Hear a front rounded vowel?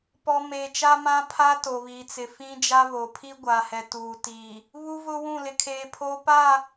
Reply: no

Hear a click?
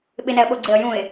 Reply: yes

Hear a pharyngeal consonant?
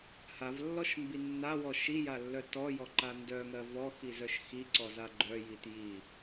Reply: no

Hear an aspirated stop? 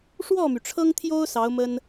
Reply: yes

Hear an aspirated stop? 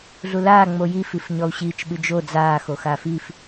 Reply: no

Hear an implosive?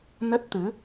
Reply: no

